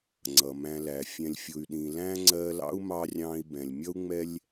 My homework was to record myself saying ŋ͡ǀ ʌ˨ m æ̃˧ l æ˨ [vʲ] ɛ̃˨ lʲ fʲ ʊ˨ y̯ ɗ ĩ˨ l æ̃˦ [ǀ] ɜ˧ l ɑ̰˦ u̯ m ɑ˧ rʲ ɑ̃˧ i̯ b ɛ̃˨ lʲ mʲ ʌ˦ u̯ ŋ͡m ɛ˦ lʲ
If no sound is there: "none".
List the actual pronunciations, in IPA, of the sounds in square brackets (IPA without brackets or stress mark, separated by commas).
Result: fʲ, ŋ͡ǀ